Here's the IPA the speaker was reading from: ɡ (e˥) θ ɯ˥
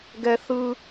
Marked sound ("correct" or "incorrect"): incorrect